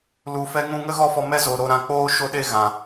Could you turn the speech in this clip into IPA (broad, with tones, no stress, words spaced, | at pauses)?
lu˨fɛ˧ŋũ˧ ŋə˦ɣɔ˦fɔ˧mɛ˦ zo˧ ɾo˦ ɾã˧k͡poː˦ʃo˦ɗe˦ ɣã˨